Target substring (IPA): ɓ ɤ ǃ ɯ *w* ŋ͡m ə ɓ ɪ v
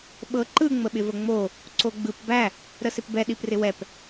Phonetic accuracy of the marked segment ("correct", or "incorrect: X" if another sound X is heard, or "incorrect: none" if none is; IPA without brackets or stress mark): incorrect: none